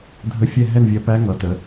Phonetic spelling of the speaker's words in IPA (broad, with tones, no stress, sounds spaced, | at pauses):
dʱ ə˧ fʲ ɛ˥˩ ɦ ɛ˥˩ n vʲ ɜ˧˩ p æ˧˥ ŋ ʌ˩˧ t ə˩˧